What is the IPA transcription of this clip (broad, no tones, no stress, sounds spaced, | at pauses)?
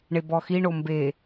ɳ e b ɔ x i ɳ o m b e